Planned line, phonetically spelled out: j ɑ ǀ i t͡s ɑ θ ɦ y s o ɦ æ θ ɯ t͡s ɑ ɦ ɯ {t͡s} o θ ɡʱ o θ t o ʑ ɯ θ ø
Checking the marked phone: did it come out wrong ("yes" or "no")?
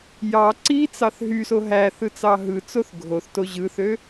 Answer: no